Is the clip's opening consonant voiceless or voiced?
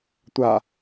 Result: voiceless